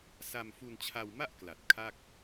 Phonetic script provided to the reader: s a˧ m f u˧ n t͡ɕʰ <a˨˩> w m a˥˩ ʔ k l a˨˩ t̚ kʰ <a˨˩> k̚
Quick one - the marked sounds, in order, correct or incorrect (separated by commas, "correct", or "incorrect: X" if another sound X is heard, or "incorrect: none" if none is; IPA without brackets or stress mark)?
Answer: incorrect: a˧, incorrect: a˥˩